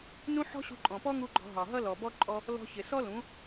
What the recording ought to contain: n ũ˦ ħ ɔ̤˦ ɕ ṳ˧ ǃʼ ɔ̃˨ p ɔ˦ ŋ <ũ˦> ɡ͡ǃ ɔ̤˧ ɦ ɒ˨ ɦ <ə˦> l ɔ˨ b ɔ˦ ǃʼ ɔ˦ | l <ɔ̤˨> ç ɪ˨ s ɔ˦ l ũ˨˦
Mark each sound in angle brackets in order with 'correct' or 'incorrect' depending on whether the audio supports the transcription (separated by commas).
incorrect, incorrect, incorrect